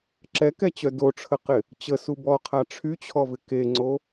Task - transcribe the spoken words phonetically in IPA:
ǁ ɛ k ɛ t͡ɕ œ d o ʈ͡ʂʰ ə q ɪ | t͡ɕ ə s u b ɔ qʰ a ʈ͡ʂʰ y t͡ɕʰ ɔ v ɪ k e ŋ͡ǀ o

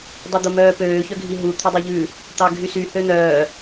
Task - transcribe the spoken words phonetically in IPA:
dˤ y d̪ o m œː p øː ç œ ɡʱ i ɦ u t̪ʰ ø dˤ o ʎ ʉ | t̪ ɑ ɡʱ y s y h ø n̪ œː

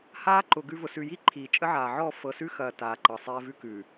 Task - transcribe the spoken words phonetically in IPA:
h aː˦ ǃ ʊ˨ ɡ ʉ˦ v ʊ˨ s ʉ˨ j i˦ ǃʰ iː˨ t͡ʃʼ ə˦ ʕ aː˨ ʕ ɔ˦˨ f ɤ˨ s ʉ˦ x ɐː˨ t aː˨ ǃ ɤ˨ sˤ ɛː˦ v ʉ˦ k ʉ˨

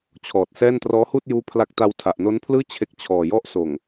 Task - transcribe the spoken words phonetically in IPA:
t͡ɕʰ ɔː˨˩ t̚ s ɛː˥˩ n t r ɔː˦˥ h uː˥˩ t̚ j uː˦˥ pʰ l a˦˥ k̚ t a˧ w tʰ a˨˩ ʔ n o˦˥ n pʰ l ɯː˥˩ t͡ɕʰ e˦˥ k̚ t͡ɕʰ ɔː˨˩ j ɔ˥˩ ʔ s oː˨˩ ŋ

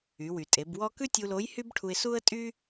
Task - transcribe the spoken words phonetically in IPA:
y˩˧ w y˩ tʼ e˩˧ b w ɔ˥ k ʉ˥ tʲ u˧ l o˧˥ j h y˥ b ʈʰ u˧ ɪ̯ s u˥ ə̯ tʼ y˥

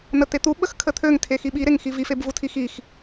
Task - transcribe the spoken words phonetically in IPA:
n̪ ə t̪ e t̪ u ɓ ə x kʰ ə t̪ʰ ø ŋ tʰ e x i ɓ i ɾ e ŋ x i v i f e b v u tʰ i x i x

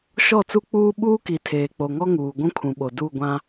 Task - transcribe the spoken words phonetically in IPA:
ʃ ɔ˦˨ t͡s u˦ k͡p uː˦ ɓ uː˦ k i˨ tʰ eː˨ k͡p o˨ ŋ ɔ˦ ŋ uː˨ ɡʷ ũ˦ kʰ ũ˨ ɓ o˨ d u˦˨ ɡʷ ã˦

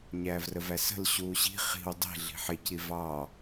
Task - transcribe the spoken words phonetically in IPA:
ɲ æː v r ə v æ s ə̤ l ɕ uː ɕ i̤ χ i̤ w dˤ i̤ ɮ i̤ ħ ɪ c i v ɑ

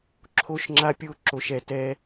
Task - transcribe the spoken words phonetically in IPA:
ǁʰ o˧ ʃ ŋ͡ǁ a˧ pʲ o˧ ǁ o˧ ʃ ɛ˧ t ɛ˦

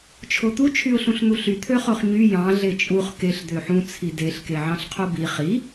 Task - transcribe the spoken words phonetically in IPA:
t͡ʃʰ o t̪ u t͡ʃʰ y ʊ̯ ɬ ũ ɬ n̪ u ɬ y t̪ʰ ø χ o χ ɲ y j ɑ̃ ɮ e t͡ʃʼ u χ k e ɬ d̪ ø ħ ũ t͡sʰ i d e ɬ k e ʕ ɑ̃ ɬ qʰ o b i χ i

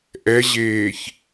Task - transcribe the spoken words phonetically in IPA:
ʔ ɛ ʑ eː ç

